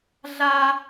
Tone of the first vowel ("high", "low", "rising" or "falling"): high